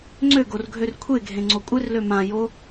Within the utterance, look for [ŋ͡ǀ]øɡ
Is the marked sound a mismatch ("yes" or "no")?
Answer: no